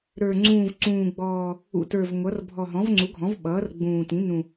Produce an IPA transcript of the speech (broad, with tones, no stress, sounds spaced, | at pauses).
ɾ ə˞˨˩ ŋ͡ǀ ũː˨˩ v ǀ ũː˨˩ ɡ͡b ɔː˨˩ | ṵ˨˩ t ə˞˨˩ v ŋʷ ʌ˩˥ r bʱ ɔ˨˩ ɦ ɔ̃˩˥ v ŋ͡ǀ u˩˥ ɡʱ ɔ̃˩˥ v ɓ ʌː˩˥ r ɡ͡b ũː˨˩ t ĩ˩˥ n ũ˨˩